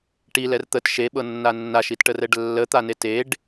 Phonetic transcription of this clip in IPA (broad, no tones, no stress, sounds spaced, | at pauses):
ʈ i l ɛ r t̪ ə t ʃ e ɓ ɤ nː a nː a ʃ i t ʈ ə r ɛ ɖ lː ə t̪ a n e t e ɖ